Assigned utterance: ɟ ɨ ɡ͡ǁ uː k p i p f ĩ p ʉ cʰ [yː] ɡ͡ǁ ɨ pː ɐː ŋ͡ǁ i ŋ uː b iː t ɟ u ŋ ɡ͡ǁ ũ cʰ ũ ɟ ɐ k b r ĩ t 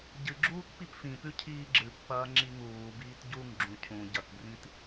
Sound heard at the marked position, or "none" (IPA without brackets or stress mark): iː